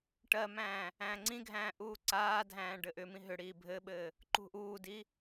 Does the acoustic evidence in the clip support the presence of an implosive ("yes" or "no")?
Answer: yes